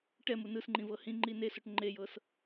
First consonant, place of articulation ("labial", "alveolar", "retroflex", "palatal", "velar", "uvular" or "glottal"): retroflex